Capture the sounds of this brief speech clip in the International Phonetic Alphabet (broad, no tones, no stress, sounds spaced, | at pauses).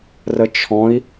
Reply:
r ə t͡ʃʰ ɔ̃ i̯